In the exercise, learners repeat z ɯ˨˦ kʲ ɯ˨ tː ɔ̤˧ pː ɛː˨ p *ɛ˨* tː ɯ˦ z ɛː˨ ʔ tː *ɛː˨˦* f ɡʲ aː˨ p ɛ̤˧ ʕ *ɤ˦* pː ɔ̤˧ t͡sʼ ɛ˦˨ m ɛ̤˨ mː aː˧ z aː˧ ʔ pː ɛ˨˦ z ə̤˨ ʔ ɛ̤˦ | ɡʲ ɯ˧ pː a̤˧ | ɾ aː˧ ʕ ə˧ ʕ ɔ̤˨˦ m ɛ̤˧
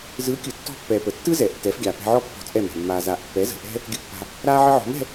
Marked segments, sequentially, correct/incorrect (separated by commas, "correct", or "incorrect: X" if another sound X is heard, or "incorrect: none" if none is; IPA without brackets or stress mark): incorrect: ə˨, correct, incorrect: ɔ˦